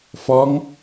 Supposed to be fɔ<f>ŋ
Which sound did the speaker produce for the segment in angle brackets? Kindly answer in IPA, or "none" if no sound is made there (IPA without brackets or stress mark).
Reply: none